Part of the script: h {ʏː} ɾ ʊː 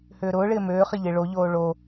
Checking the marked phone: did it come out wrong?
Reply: no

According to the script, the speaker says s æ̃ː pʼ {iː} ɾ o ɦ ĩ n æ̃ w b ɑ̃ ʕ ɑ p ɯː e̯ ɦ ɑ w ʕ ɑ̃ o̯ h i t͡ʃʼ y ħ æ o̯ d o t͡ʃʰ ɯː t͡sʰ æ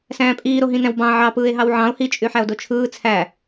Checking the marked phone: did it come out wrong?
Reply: no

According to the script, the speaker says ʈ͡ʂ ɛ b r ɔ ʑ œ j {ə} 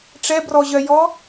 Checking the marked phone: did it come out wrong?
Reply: yes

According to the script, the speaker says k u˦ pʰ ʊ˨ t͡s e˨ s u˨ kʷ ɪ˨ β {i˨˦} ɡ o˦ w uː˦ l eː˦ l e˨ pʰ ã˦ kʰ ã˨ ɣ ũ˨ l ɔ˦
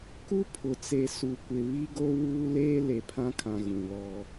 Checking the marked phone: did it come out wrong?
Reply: yes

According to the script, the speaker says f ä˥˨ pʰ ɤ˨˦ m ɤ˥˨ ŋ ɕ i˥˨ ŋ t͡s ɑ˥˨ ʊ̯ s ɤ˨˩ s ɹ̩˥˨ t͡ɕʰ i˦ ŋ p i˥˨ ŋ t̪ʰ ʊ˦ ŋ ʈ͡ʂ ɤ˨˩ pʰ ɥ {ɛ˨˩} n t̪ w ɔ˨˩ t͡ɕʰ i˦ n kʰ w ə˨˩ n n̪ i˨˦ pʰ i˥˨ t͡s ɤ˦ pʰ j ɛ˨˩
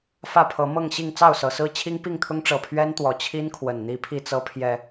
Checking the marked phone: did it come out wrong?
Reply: yes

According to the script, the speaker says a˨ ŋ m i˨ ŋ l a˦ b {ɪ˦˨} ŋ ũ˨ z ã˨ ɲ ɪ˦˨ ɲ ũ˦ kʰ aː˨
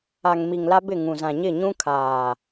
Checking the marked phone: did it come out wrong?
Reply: no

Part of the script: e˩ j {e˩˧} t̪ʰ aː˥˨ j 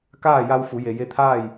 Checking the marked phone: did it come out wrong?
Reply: yes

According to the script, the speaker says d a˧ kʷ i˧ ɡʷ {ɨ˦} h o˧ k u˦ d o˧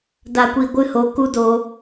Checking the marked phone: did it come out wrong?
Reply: no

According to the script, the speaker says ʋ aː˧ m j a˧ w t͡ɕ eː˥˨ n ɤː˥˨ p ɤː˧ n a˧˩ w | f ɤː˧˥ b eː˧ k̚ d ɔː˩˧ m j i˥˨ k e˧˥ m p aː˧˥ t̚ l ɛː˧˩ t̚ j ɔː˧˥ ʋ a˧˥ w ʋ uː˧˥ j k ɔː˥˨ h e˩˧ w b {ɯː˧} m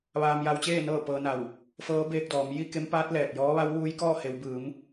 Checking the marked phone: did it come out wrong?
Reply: yes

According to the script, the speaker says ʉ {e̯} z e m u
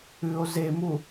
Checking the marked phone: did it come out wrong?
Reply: yes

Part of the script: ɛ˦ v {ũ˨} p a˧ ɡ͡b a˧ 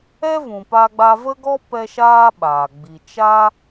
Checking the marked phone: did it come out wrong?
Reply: no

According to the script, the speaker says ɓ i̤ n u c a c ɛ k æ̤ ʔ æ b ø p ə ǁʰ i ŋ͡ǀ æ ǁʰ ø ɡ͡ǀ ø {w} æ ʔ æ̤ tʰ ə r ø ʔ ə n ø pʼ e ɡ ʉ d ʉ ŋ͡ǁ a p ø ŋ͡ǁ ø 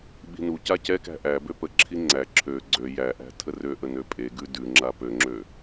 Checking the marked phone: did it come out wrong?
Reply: yes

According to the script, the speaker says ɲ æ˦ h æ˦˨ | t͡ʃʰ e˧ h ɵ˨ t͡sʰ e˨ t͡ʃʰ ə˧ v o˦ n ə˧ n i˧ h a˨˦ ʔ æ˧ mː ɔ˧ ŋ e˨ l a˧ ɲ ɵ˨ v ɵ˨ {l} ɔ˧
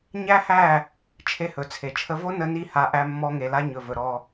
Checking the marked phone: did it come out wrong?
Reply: yes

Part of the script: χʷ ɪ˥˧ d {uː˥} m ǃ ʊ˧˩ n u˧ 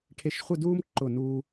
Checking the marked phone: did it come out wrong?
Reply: no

